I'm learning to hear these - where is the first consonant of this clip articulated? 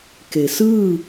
velum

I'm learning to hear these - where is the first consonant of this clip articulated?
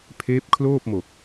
lips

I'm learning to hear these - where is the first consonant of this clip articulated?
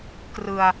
velum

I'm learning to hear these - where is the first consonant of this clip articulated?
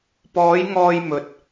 lips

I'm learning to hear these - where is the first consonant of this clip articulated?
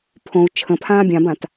lips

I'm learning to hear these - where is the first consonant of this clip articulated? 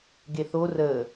velum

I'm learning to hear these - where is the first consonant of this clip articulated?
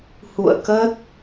throat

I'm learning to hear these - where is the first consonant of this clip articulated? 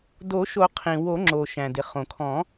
tongue tip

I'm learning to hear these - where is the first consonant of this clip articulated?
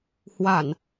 throat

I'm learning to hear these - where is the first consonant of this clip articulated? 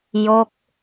palate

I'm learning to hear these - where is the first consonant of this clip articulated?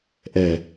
throat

